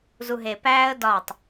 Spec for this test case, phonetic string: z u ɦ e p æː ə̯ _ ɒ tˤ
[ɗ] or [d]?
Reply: d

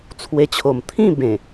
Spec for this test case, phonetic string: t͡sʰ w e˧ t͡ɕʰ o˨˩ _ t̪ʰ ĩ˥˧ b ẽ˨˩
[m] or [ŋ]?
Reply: m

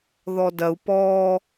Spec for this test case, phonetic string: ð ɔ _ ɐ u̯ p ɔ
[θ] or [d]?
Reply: d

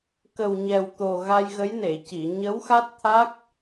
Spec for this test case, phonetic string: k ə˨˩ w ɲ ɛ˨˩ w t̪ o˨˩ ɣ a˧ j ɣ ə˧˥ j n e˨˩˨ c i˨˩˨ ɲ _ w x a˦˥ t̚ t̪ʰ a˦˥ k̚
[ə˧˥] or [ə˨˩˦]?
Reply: ə˧˥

